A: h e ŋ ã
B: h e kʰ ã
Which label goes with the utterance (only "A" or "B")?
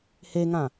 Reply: A